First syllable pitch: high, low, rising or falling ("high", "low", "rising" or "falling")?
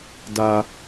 high